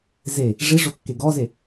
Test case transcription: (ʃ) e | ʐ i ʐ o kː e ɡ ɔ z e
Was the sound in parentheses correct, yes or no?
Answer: no